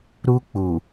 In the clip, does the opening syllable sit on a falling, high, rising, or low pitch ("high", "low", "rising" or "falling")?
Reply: high